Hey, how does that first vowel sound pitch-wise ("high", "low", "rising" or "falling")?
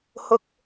high